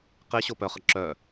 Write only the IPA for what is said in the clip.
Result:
q e ɕ o p œ χ ə ǁ œ

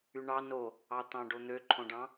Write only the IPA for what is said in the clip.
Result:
y ɳ ɑ n o | ɑ t̪ ɑ̃ ɖ o n̪ ø ǃʰ õ ɖ ɑ̃

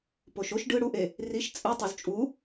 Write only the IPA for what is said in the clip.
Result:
p o ʃ o ʃ ɖ ɯ ɽ u ʔ e | r i ʃ t͡sʼ ɯ tˤ o z t͡ʃʼ u

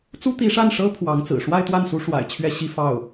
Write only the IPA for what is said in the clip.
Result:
t͡s u˥ t̪ i˧˥ ʂ a˥˩ n ʂ ɤ˥ pʰ w ɑ˧˥ ŋ t͡s ɹ̩˨˩ ʂ w a˥˧ ɪ̯ t̪ w a˥˩ n s u˧˥ ʂ w a̰˨˩ ɪ̯ t͡ɕʰ ɥ ɛ˥˧ ɕ i˥˧ f ɑ˥˩ ʊ̯

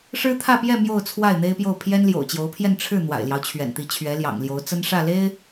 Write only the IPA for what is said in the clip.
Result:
ʂ ɻ̩˥ t̪ʰ ä˥˧ p j ɛ˥˧ m j o˥˧ ʊ̯ t͡sʰ w a˥˩ ɪ̯ n̪ e˥ ɪ̯ p j o˥˩ ʊ̯ pʰ j ɛ˥ n l j o̰˨˩ ʊ̯ t͡ɕ j o˧˥ ʊ̯ pʰ j ɛ˥˧ n ʈ͡ʂʰ ɻ̩˥˩ n̪ w a̰˨˩ ɪ̯ l j ɑ˦ ʊ̯ t͡ɕʰ ɥ ɛ̰˨˩ n t̪ i˧˥ t͡ɕʰ ɥ ɛ˧˥ l j ɑ̰˨˩ ŋ l j o˧˥ ʊ̯ t͡s ə˥ n ʂ ä˥˩ l e˥ ɪ̯

